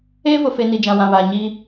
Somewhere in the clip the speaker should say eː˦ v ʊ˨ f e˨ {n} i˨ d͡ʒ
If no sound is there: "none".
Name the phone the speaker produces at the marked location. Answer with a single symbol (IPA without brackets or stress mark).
n